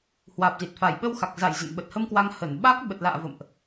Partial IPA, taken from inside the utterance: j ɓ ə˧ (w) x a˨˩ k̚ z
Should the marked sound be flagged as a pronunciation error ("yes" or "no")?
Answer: no